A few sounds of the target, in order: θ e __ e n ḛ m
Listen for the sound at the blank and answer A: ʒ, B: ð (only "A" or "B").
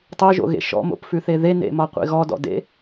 B